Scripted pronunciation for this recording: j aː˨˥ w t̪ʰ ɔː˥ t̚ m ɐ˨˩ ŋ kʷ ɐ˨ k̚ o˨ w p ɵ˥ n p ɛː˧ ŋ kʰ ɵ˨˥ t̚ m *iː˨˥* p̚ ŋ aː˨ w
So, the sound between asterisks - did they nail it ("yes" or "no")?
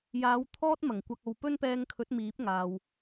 yes